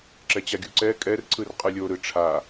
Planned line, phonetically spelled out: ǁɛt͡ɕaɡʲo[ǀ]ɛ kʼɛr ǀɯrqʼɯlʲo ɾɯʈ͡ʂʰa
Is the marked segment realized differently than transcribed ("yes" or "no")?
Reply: no